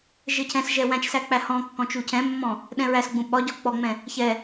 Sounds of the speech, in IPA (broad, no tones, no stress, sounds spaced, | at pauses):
ʒ ɘ cʰ ɛ̃ s ʒ ɛ w æ̃ t͡ʃ s æ k͡p æ h ɔ̃ kː ɔ̃ t͡ʃ u cʰ ɛ̃ mː ɔ̃ | ɗ ɛ̃ ɹ æ s ɡ͡b ũ ɓ ɒ ɟ ɒ k͡p ɔ ŋ͡m ɛ̃ | ç ɛ